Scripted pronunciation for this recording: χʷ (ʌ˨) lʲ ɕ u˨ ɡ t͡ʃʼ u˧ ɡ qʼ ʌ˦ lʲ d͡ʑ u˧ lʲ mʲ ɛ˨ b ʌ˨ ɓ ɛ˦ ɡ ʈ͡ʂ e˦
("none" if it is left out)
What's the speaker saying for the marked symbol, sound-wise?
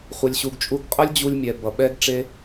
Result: ʌ˨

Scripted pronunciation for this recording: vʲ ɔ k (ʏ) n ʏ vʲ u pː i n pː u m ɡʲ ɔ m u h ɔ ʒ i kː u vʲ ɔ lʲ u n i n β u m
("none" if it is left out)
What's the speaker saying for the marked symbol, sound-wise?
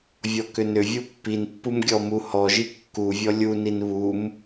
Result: ʏ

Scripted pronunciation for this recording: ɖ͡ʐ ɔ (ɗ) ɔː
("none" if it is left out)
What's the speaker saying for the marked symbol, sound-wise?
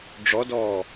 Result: d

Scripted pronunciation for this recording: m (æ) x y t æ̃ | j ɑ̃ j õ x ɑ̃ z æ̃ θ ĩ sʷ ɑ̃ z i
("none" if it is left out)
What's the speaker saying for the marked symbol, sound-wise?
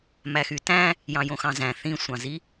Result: æ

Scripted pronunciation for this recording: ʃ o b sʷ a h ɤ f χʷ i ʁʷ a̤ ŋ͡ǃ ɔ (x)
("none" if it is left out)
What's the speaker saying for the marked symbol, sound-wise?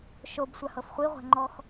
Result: x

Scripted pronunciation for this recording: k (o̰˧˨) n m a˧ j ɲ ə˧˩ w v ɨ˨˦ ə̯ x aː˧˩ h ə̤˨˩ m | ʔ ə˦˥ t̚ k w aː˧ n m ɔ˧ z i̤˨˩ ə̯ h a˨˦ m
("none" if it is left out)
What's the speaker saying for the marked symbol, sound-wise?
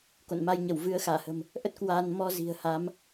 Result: o̰˧˨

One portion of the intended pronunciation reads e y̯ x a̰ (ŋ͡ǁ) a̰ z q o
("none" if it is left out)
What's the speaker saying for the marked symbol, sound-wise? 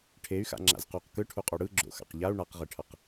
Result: ŋ͡ǁ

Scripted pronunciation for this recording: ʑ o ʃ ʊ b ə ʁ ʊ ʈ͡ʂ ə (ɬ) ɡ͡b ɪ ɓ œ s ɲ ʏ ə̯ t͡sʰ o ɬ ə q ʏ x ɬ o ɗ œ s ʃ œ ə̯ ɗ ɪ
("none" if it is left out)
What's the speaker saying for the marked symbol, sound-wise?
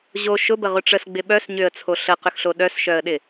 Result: s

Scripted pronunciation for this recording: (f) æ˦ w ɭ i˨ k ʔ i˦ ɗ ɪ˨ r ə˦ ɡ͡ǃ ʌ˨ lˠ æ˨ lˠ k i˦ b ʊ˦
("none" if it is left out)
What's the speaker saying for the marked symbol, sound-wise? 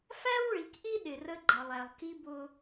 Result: f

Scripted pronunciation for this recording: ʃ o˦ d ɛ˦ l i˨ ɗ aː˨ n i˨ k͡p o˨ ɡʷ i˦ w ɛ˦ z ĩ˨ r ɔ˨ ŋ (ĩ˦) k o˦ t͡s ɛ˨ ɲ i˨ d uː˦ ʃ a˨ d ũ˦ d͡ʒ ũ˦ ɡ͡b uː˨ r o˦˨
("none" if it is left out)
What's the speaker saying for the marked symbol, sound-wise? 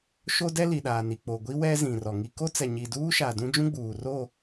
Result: i˦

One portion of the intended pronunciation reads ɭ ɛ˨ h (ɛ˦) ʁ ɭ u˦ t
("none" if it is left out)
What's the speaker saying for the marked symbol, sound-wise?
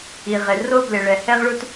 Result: ɛ˦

